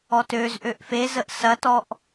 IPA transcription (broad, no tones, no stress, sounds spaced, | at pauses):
ɔ t ø z ʔ ø ʔ f e z ə ʔ s ɐ t ɔ ʔ